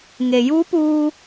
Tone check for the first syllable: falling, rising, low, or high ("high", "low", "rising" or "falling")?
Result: low